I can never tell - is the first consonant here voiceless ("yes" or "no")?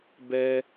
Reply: no